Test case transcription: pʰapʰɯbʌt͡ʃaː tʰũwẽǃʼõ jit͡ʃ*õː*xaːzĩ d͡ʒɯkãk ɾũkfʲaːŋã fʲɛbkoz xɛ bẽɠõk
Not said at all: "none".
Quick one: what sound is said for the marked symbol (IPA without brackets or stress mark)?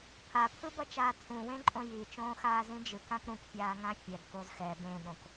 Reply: õː